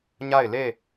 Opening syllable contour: falling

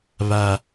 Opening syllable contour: high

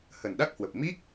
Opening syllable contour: low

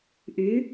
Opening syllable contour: rising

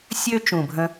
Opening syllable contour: high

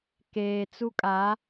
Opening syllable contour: low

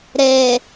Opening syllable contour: low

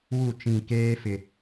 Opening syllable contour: falling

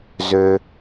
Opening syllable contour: high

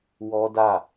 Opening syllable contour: high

